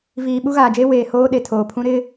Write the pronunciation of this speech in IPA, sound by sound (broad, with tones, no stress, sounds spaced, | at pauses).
v iː˨ ɓ u˦ ɣ aː˨ d͡ʒ eː˦ w eː˨ h oː˦ ɗ e˨ tʰ oː˨ pʰ ũ˦ ɾ ɪ˦